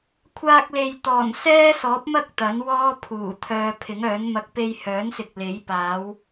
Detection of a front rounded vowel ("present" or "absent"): present